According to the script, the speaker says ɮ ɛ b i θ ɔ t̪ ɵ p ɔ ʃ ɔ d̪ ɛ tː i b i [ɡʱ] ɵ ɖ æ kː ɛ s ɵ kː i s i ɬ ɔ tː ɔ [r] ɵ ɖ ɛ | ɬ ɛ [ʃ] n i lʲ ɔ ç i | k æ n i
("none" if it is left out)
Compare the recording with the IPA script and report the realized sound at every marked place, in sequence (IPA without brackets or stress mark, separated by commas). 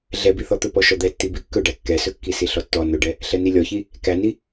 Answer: kː, n, none